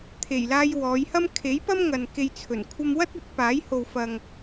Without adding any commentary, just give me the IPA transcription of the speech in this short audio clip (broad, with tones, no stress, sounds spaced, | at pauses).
t̪ʰ e˨˩ j l aː˧ j w ɔː˨˧ j h ɐ˥ m kʰ e˨˥ j p ɐ˥ m ŋ ɐ˨ n k e˧ j t͡sʰ ɵ˨˩ n kʷʰ ɐ˧ m w ɐ˥ t̚ ɐ˨˥ t̚ p aː˨˥ j h o˨ w f ɐ˨ ŋ